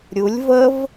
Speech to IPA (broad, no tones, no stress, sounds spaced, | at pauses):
ɾʲ u lʲ v ə v